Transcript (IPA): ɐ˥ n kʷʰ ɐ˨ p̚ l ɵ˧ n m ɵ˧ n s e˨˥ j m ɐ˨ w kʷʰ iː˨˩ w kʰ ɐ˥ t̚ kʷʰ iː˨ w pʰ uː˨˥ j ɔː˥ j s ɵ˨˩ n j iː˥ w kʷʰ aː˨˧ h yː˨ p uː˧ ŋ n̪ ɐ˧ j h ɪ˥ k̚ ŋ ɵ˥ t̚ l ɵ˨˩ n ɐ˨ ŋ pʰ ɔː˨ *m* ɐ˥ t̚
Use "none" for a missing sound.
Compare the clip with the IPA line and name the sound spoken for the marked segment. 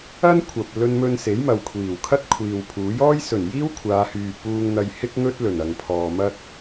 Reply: m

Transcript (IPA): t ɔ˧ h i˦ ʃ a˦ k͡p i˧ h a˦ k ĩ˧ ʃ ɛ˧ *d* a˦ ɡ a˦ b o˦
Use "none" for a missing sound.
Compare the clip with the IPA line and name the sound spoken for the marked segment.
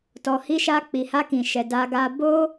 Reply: d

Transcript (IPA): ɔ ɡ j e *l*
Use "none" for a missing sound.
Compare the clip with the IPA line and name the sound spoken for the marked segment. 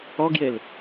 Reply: l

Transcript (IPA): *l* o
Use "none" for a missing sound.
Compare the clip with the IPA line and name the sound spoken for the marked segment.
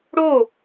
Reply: ɽ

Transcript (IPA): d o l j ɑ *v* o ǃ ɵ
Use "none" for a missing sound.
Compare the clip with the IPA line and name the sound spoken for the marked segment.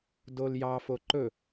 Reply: f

